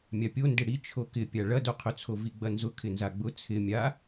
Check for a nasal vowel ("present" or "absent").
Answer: absent